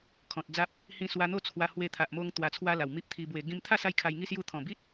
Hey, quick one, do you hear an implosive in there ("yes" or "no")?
no